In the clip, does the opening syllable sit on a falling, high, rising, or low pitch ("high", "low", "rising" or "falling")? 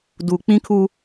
low